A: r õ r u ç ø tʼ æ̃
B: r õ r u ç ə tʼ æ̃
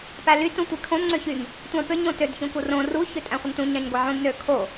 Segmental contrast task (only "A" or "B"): A